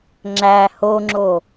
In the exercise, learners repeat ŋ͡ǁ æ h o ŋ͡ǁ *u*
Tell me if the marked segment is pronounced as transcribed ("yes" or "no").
no